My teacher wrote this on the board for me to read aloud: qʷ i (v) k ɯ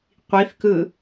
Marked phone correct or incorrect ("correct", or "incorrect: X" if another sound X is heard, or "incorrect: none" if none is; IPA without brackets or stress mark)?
incorrect: θ